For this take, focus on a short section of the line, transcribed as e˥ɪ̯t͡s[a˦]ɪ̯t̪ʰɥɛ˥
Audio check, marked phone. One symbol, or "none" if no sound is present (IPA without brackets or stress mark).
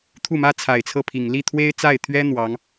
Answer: a˥˩